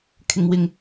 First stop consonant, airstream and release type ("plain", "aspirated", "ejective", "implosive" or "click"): aspirated